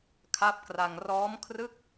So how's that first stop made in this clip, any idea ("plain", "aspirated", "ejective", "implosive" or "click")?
aspirated